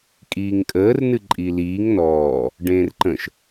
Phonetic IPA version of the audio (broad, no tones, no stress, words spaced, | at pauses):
kʼiːŋkʼəːr nɨǃʼiliːŋ nɔː | ɖẽːrǃə̃ʃ